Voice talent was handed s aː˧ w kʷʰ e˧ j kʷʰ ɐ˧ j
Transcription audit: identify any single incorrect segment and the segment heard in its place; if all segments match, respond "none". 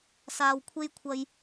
e˧ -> e˥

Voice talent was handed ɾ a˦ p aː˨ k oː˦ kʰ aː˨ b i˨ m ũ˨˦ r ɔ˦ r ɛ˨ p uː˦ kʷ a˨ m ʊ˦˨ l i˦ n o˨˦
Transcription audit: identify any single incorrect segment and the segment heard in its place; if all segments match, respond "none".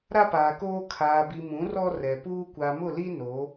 none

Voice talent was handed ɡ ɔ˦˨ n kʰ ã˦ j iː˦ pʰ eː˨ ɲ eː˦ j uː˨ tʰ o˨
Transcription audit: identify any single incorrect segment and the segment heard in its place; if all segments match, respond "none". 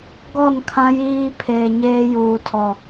o˨ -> ɔ˨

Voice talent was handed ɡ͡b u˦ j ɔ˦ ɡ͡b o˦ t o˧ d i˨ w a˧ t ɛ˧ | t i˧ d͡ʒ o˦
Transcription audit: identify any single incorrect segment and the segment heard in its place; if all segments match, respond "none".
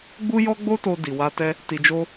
none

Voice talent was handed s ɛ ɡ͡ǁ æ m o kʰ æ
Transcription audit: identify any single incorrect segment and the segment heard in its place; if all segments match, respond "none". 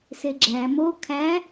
ɛ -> e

